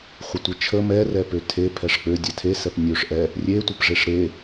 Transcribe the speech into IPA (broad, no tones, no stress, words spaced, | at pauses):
χʷətʷet͡ʃʰə mɛrɛ pøtʰe pʰɛʂk͡pø dʲɛtʰesɛp nʲøʂ ʔɛ | rʲetʷəp ʐeʂɾe